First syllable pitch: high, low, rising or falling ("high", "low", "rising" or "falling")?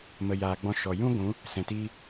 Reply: low